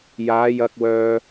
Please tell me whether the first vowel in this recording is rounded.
no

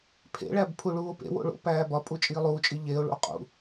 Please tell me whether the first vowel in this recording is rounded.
no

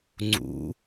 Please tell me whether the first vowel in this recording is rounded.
yes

